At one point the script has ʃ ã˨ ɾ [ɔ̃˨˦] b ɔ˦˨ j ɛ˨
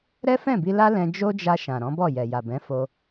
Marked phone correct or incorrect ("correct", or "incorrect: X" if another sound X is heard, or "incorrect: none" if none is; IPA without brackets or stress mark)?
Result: correct